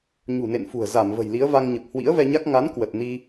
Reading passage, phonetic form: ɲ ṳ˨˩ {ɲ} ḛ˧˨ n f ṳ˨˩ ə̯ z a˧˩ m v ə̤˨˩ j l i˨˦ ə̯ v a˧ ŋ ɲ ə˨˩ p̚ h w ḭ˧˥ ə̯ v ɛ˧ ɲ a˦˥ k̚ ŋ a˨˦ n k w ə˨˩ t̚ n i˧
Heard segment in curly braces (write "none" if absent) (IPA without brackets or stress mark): n